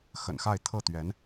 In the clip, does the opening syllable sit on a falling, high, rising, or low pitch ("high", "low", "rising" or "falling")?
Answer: low